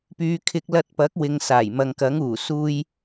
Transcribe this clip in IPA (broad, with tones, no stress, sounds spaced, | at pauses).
p yː˨˧ kʰ ɪ˧ k̚ l ɐ˧ t̚ p ɐ˨˥ k̚ w ɪ˨ ŋ s aː˨˩ j m ɐ˨ ŋ k ɐ˨˥ ŋ uː˨˩ s uː˥ j